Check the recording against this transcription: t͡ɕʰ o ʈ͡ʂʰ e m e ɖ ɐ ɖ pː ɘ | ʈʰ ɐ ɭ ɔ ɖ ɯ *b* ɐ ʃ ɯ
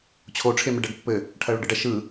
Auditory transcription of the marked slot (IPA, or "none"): ɖ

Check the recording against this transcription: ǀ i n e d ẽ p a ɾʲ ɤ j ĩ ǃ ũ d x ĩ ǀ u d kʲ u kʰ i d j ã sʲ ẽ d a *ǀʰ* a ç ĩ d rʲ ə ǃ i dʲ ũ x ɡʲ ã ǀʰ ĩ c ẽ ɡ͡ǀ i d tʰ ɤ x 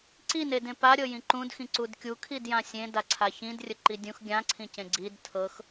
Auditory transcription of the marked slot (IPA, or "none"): ǀʰ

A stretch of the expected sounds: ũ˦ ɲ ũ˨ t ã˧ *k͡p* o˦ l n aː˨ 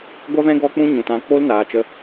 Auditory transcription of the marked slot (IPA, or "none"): k͡p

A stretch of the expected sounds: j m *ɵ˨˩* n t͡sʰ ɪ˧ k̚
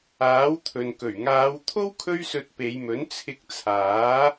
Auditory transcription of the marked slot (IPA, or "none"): ɵ˨˥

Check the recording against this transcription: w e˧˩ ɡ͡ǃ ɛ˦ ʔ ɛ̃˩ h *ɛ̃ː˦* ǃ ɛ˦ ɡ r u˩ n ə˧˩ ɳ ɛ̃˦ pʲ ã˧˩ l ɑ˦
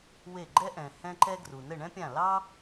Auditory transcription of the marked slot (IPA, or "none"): ɛ̃˦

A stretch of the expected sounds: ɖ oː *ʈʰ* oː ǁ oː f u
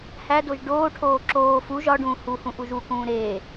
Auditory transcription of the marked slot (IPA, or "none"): ʈʰ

